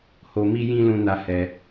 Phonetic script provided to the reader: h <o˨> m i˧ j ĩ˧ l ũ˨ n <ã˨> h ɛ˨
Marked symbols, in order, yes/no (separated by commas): yes, no